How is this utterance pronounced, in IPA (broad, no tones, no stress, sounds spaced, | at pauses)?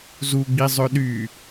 z u ɡ͡b i zˤ ø ɗ y